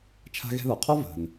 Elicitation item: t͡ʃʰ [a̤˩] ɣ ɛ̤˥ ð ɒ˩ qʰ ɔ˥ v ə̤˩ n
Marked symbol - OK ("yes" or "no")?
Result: no